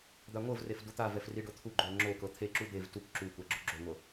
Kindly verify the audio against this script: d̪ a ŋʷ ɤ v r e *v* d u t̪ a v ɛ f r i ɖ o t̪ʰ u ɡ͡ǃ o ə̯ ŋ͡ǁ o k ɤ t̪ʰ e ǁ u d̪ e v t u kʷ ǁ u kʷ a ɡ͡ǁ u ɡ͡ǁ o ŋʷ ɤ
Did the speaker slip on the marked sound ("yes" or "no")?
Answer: yes